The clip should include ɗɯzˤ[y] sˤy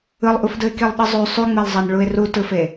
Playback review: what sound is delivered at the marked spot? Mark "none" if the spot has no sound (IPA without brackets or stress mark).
y